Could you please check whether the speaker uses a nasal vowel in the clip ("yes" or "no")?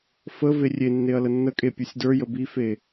no